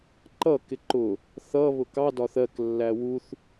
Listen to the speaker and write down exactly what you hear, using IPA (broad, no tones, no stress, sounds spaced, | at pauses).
ǃ ʌ k ɪ ǃ ʊ | θ ʌ β ʊ k ɑ d ɒ θ ɜ k lː æ w u θ